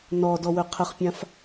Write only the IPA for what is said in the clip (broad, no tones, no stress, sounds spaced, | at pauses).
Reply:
n ɔ d ɔ w ø qʰ ə χ pʲ ã f